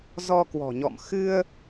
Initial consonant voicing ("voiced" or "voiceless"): voiced